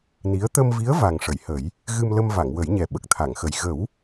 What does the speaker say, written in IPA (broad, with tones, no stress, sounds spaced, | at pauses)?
n i˧˥ ə̯ t̪ ə˧ m v i˧˥ ə̯ v a˨˩ ŋ ʂ ə˨˩˨ j h ə˨˩˦ j | ɣ ɨ˧ m l ə˧ m v a˨˩˨ ŋ w ə˨˩˦ j ɲ ɛ˨˩ ɓ ə˨˩ k̚ t̪ʰ a˨˩˨ ŋ x ə˨˩ j ɣ ə˨˩˦ w